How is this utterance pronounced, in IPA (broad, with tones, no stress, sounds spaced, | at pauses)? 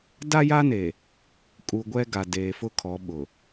d a˦ j a˦ n e˨ | kʼ u˨ ɡʷ ɛ˦ ɡ a˨ d eː˨ f ʊ˦ kʰ ɔ˨˦ ɓ ʊ˨